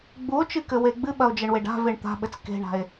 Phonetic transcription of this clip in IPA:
ɡ͡buo̯t͡ʃɨkɘwe ɡ͡bɨɓɐo̯d͡ʒɐɳweɖ a̤veɳ t̪a̤ɓɘt͡s ke̤ɳa̤e̯

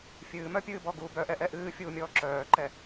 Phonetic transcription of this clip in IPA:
fʲɨːmœpʲɨːbɔ ɡuːbœʔɛ ʔɛʔɨːfʲuːmʲɔː ǁœːǃɛ

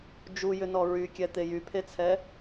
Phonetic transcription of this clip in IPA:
d͡ʒujʏnɔ ɹykʲɛt̪e jypʰet͡sʰɛ

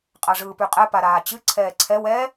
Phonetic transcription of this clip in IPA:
qʼaʐɯːpyqʼɛ paɾaːt͡ɕɨ ǀʰɛːǀʰɛw ɛ

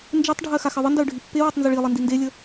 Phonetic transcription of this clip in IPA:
nd͡ʒetˤɖʱɜ xaxɜðˤəndɜʊ̯ ɖʱipːewitˤ nzəɭilˠi ndindelʲə

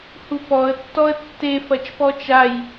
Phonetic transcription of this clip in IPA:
hupɔə̯ tːɔə̯tːe fɐt͡ʃpɔt͡ʃaj

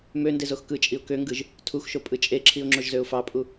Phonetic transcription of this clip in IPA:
mø ndezoxkɯt͡ʃʼiʊ̯ køŋɡɯʒ | tʰuxʃo pʼɯt͡ʃʼeǁʰiʊ̯ ŋ͡ǁoʒzøʊ̯fɑpʼu

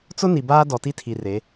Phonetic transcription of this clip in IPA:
t͡sʊ˦ ni˨baː˦ dɔ˨ti˦tʰi˨ re˨˦

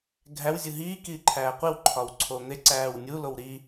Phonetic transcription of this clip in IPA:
ɡʱæw zʲuɦiː kiːǃʰæːqʷiw ǃʰɒwǀʰon̪e ǀæːwnʲu lowɾi

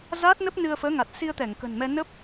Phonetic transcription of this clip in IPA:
zaː˦˥t̚nə˦˥p̚ nɨ˧ə̯fəː˨˦ŋa˨˩t̚ si˧ə̯ t̪ɛ˧˩ŋ kə̤˨˩nmɛ˧ nə˦˥p̚

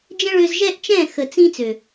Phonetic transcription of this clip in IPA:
d͡ʒə̃˦ɭø˧zʒɛ˦ʔ t͡ʃɛ̃˦˨xə˨t͡sĩ˧ t͡sø˨

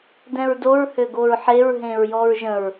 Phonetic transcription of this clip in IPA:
dɛ̃ɹdoɹ høɡoɹħeɹ ɦẽɹjɔɹʒə̃ɹ

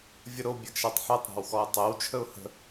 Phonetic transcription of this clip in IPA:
vʲəɾo bʲɛɡʃatˤħetˤ ɾa̤wxɔɪ̯tˤew t͡ʃʰəʊ̯hə̤

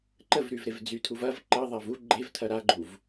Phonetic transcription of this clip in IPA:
ǃəvɾyvɾev d͡zytʰuv ɐv ǃəðˤav u ɡ͡ǃevtʰɐ ɾaɡ͡ǃuv

